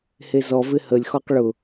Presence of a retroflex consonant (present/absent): present